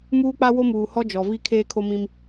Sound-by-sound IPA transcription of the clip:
m uː˦ k͡p a˦ w o˦ m uː˨ h ɔ˦ d͡ʒ ɔ˨ v i˦ kʰ eː˦ kʰ o˦ m ĩ˦ m

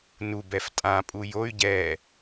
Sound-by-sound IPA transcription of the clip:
n u b ɛ f tʼ ã pʼ u j o y̯ ɟ ɛ

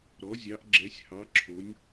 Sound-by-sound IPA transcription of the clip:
ɾ ɔ˨˦ zʲ ɑ˨˦ ʔ ɡ͡ǁ ɛ˨˦ sʲ h ɑ˨˦ ǁʰ o˨˦ nʲ

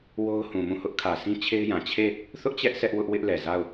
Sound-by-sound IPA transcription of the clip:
w o˦ ʊ̯ h ũ˨ m ũ˦˨ h ʊ˦ ʔ kʰ ä˨ s ĩ˦ t͡ɕʰ e˦ ɪ̯ j ã˨ t͡ɕʰ e˦˨ | θ ʊ˦ ʔ t͡ɕ ɛ˦ ʔ sʰ ɛ˦ ʔ w ʊ˦ ʔ w ɪ˦ ʔ l ɛ˨ z a˦˨ ʊ̯

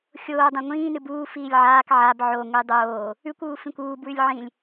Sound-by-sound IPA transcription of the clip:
xʲ oː dˤ ã ŋʷ ĩː n ɨ b uː f iː lʲ ʕ aː k ʕ a b ʕ o ŋʷ i dˤ oː | ʉ kʷ uː f ĩ kʷ uː b w ʉ lʲ ʕ ĩ lʲ

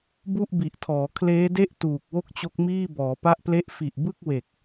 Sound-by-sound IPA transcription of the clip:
b u˥˩ ʔ b i˨˩ ʔ tʰ ɔː˩˦ kʰ l eː˦˥ d e˥˩ ʔ t uː˨˩ k̚ w o˥˩ k̚ t͡ɕ o˦˥ k̚ m iː˥˩ b ɔː˩˦ p a˥˩ ʔ p l e˥˩ ʔ f i˨˩ ʔ b ɯ˥˩ k̚ w e˨˩ k̚

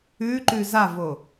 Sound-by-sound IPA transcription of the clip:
ʉ ǃ ʉ z a v o

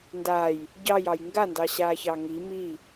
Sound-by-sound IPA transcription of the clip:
n d a j | ɟ ɑ j ɑ j ŋ ɡ a n d ɑ ɕ aː ç ɑ ŋ i m i

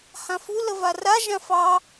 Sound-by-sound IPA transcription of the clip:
h ã f u l ə v a r a ʒ ã f ɑ

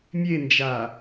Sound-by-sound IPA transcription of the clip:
mʲ e n d͡ʒ a

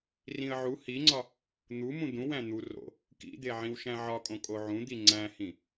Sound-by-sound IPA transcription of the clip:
r ĩ ə̯ ʕ u h i ŋ͡ǀ ɒ | n̪ u m ũ d̪ ũ w æ̃ n̪ u r o̰ | k ḭ d̪ e ʕ ĩ w ʃ æ̃ ʕ ɒ kʼ õ kʼ o ʕ ũ d̪ i ŋ͡ǀ æ̃ h ĩ

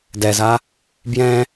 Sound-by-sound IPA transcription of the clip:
d ɛ z a | b j ɛ̃

